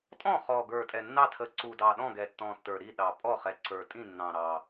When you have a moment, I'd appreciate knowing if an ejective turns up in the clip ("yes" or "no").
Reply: yes